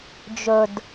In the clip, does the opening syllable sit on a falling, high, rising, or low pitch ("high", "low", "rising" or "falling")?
low